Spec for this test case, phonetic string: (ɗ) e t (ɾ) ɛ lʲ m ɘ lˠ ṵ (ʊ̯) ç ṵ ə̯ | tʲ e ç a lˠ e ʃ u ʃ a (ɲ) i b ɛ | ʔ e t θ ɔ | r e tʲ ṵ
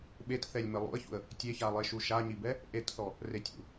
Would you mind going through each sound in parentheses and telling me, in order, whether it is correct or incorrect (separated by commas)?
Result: incorrect, incorrect, incorrect, correct